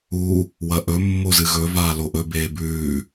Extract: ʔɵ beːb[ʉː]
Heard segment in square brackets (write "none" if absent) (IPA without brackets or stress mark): ʉː